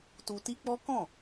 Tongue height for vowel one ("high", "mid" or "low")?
high